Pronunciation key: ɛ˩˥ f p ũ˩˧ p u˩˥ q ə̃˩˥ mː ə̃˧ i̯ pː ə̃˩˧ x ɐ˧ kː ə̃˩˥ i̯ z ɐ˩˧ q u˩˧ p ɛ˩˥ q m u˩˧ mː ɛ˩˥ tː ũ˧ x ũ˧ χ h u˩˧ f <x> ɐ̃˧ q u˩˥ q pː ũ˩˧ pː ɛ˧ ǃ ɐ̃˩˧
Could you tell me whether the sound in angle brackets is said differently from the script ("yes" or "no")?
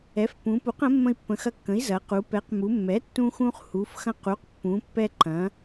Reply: no